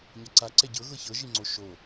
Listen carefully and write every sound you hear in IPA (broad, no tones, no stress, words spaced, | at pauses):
ɲaǀa ǀɛɟɤ ɣɤçɤ ʒiŋ͡ǀoʃo